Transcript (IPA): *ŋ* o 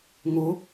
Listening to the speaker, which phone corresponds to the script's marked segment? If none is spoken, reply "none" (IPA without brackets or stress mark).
ŋ